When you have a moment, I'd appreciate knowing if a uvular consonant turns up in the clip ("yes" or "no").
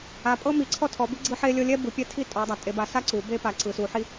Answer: no